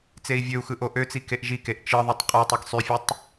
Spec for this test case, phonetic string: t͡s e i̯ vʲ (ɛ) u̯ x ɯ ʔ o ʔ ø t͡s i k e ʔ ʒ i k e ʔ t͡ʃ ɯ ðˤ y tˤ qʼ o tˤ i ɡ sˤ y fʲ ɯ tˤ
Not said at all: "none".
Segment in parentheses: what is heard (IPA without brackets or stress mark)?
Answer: ø